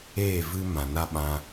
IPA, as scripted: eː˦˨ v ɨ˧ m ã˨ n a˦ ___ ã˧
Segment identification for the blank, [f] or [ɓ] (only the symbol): ɓ